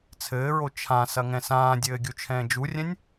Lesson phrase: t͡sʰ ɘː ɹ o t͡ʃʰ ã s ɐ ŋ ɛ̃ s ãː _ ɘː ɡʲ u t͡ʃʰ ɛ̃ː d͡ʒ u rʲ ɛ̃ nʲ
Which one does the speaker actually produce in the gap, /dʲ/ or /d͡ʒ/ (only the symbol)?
dʲ